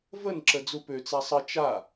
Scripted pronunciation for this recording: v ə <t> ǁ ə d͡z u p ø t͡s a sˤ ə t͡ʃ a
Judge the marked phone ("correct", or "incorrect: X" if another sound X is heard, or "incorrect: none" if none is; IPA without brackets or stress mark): incorrect: n